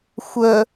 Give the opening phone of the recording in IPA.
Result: xʷ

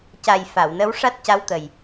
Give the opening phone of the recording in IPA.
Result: c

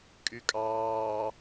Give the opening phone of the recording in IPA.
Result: kʼ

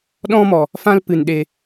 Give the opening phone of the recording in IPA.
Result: ɗ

